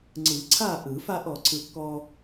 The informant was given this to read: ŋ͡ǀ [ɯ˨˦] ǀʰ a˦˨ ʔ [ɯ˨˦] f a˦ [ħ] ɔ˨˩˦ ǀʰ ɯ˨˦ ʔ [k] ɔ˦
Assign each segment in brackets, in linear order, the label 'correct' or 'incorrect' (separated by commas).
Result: incorrect, incorrect, incorrect, correct